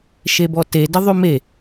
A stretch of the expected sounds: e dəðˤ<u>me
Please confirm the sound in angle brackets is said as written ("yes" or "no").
no